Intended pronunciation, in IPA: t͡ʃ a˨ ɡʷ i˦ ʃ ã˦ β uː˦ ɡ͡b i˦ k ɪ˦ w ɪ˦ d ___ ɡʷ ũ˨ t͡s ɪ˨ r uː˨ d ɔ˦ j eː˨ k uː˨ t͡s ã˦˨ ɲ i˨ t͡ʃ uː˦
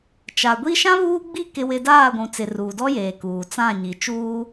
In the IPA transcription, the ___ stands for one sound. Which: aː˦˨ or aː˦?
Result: aː˦˨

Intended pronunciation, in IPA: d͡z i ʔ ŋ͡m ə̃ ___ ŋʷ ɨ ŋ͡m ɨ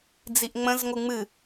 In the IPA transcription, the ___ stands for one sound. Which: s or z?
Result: z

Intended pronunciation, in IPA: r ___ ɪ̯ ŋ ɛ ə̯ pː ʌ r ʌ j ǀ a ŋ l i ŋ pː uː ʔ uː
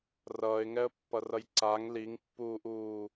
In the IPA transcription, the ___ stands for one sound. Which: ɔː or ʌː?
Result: ʌː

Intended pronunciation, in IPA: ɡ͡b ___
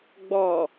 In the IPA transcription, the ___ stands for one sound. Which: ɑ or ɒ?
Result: ɒ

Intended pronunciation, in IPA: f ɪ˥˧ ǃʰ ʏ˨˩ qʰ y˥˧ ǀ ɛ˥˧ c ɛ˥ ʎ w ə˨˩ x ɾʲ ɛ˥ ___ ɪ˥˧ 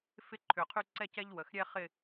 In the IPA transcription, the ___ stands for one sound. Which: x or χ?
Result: χ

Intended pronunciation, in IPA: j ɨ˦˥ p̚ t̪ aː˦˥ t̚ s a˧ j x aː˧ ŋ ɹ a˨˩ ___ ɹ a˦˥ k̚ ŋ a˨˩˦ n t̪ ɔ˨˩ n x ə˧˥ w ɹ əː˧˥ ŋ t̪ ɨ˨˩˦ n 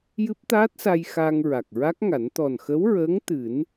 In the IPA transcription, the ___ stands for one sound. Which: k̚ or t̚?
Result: k̚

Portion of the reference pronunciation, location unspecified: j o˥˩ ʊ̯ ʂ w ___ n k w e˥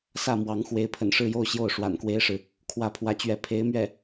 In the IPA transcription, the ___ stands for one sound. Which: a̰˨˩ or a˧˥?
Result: a̰˨˩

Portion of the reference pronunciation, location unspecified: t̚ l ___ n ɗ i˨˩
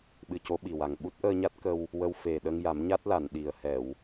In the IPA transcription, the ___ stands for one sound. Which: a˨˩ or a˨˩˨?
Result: a˨˩˨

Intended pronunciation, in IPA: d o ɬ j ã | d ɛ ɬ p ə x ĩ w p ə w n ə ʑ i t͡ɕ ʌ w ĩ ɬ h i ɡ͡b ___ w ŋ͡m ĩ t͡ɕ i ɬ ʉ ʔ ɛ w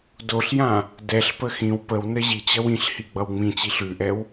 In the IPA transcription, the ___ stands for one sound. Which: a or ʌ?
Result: ʌ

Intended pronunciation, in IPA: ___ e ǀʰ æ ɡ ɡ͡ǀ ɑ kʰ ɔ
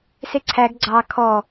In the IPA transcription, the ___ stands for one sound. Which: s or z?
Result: s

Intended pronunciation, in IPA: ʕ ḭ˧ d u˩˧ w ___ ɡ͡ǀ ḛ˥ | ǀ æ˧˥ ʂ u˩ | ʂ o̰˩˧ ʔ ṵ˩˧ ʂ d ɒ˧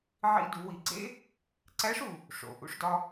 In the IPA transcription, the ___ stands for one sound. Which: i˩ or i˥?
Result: i˩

